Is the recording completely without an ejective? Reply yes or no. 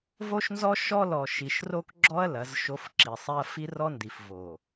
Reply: yes